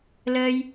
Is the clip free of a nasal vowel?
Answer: yes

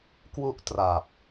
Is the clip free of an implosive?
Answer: yes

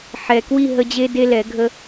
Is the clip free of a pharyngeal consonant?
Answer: no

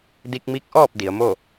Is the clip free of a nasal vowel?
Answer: yes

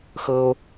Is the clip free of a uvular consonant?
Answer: yes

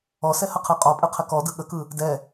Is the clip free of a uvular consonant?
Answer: no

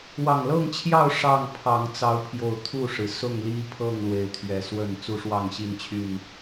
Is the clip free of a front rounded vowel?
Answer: no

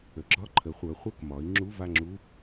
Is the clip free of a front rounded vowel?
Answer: no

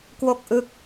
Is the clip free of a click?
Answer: yes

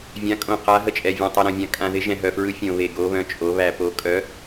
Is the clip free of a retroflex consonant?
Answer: yes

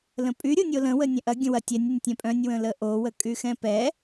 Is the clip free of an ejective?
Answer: no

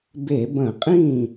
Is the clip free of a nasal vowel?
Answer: no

